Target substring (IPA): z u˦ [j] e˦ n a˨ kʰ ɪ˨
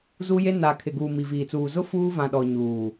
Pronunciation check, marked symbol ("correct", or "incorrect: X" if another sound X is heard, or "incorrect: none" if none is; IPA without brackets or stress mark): correct